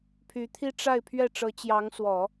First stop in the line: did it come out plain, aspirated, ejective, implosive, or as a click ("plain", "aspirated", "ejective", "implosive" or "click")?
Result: aspirated